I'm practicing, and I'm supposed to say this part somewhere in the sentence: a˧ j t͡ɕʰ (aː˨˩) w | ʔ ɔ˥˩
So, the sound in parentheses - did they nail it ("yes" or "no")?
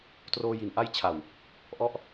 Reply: no